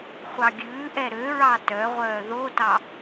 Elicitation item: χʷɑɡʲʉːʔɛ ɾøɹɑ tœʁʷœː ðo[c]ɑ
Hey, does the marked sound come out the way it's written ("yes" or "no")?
no